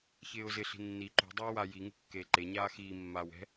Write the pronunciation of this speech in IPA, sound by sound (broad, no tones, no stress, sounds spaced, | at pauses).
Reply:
ç ɪː ʊ̯ z ɪ ɬ i̤ nː i ǃ ṳ dˤ iː w a j i ŋ ṳ kː eː ǃ e ɲ aː x iː mː aː w ɛ̤